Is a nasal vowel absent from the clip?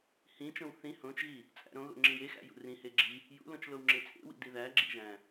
no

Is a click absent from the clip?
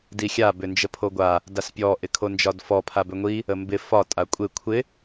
yes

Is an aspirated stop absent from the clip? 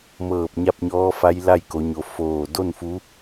yes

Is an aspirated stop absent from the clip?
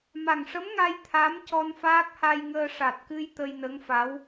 no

